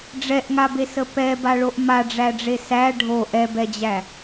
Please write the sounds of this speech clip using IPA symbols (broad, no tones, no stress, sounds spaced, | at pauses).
ɖ͡ʐ ɛ ʔ ŋ a b e s ə p ɛ b a ɭ o ʔ m a ɖ͡ʐ æ ɖ͡ʐ e s æ ɖʱ o ʔ ɛ b ɛ d͡ʑ æ